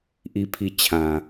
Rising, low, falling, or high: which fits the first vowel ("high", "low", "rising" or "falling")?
low